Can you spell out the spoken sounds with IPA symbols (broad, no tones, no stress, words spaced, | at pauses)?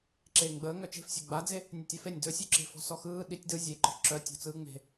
ǁeːŋɡ͡bəː ŋœt͡ʃe̤fsʲe ɡ͡bad͡ze | nʲʊtʲafenʲ dɵsʲuǁe̤ fɔ̤sɔxɯː ɗitʲ dɯ zʲeǃɔ̤ ǁœtʲɔ̤ t͡sɯːŋ͡me̤